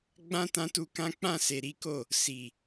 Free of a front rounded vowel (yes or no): yes